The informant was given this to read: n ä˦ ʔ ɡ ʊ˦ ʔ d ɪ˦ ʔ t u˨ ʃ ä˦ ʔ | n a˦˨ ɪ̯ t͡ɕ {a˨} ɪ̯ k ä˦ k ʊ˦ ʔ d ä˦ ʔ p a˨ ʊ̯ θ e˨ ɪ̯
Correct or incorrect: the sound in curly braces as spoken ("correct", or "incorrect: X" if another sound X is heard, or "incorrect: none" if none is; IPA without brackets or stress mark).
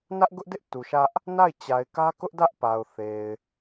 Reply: correct